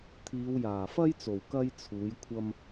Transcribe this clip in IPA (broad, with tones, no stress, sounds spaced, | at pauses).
t̪ʰ iː˨˧ w j aː˨˩ f ɐ˥ j t͡s o˨˩ w k ɐ˥ j t͡sʰ uː˨˥ j kʷʰ ɐ˥ m